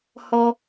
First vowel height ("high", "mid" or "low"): mid